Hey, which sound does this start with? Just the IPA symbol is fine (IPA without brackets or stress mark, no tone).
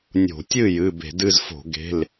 nʲ